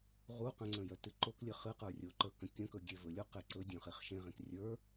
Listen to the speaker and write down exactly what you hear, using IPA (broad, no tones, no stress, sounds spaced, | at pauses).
ʁ u q ə̃ ŋ͡ǀ ə̃ j œ t ɨ ǃ o k lʲ ə χ ɨ q ə˞ rʲ o ǃ ə˞ k ə̃ kʲ ə̃ k ɵ ɡʲ e v ɵ lʲ u q e ǀ ɵ dʲ œ̃ χ e χ ʃ ẽ ʁ ẽ k rʲ ə˞